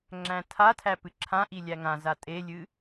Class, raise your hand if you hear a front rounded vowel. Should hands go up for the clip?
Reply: no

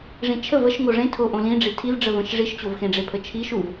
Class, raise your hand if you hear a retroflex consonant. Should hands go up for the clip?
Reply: yes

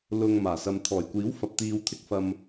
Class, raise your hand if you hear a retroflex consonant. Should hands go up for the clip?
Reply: no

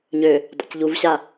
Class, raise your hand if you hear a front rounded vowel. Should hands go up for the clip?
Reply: yes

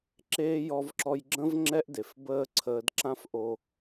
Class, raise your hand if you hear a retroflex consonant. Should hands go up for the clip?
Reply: no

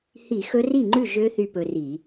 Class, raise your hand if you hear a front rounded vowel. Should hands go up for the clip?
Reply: yes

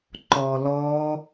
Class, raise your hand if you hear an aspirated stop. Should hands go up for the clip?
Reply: no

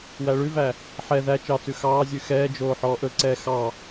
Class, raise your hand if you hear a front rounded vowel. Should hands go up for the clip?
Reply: no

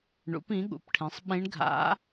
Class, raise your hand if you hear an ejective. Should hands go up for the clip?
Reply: no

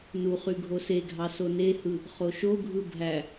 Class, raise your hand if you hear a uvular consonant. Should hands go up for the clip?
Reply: yes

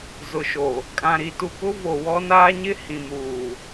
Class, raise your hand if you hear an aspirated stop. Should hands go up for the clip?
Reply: no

